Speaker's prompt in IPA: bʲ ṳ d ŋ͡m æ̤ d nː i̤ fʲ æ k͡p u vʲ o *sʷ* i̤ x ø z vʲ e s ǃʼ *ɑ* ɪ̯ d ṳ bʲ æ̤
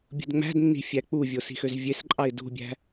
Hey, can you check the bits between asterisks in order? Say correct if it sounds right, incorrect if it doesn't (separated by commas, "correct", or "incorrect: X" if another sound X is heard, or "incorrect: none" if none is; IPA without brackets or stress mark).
incorrect: s, correct